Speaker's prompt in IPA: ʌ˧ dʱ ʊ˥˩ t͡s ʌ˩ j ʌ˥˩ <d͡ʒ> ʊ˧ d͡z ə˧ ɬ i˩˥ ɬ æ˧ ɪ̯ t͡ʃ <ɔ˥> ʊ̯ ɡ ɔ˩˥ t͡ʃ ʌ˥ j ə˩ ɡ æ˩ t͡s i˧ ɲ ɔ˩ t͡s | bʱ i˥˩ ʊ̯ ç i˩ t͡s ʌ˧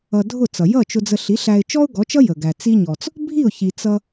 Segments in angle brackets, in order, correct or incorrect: incorrect, correct

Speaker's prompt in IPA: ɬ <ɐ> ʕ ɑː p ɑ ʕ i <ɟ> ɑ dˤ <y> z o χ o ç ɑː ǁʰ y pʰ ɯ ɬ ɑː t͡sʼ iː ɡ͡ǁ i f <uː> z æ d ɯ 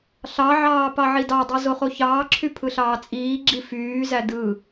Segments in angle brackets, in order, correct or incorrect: incorrect, incorrect, correct, incorrect

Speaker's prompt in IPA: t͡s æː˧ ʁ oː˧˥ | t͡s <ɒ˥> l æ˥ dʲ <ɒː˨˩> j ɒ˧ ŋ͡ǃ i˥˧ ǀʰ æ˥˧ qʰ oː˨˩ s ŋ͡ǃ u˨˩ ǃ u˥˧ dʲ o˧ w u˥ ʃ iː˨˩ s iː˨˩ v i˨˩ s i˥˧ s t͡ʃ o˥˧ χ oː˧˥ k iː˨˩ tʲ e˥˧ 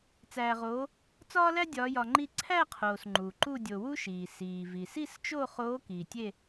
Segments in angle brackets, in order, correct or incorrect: incorrect, incorrect

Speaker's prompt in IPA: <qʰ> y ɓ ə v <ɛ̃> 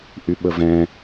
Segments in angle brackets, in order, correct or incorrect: incorrect, correct

